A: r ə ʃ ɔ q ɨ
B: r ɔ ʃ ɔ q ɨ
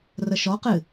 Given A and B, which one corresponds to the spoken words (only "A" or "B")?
A